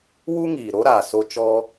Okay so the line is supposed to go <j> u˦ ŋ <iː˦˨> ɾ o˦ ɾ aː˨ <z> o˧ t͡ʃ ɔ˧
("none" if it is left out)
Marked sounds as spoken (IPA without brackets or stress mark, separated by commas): w, iː˨, s